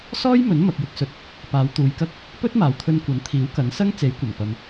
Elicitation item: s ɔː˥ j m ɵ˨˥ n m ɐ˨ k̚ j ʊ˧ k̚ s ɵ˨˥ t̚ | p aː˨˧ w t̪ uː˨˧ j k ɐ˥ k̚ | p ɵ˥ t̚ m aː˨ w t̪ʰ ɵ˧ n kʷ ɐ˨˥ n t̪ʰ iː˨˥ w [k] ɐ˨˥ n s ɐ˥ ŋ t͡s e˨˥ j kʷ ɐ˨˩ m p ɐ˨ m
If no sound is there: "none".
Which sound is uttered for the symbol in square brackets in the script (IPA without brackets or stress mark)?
k